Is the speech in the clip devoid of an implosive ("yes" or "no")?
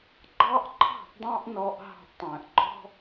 yes